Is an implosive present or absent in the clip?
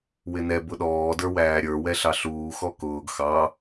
present